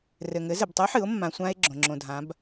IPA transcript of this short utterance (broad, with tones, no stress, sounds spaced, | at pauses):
r ɘ˩ ŋ ɘ˩˧ z ɘ˩ b tˤ o˧˥ ħ ɨ˩˧ o̯ mː ã˩ sʷ ã˧ e̯ ɡ͡ǁ õ˩ ŋ͡ǁ õ˩ dʱ ã˩˧ b